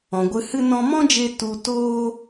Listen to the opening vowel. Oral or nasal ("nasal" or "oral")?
nasal